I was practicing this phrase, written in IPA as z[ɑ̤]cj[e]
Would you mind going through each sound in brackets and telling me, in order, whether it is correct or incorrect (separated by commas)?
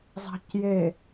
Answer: correct, correct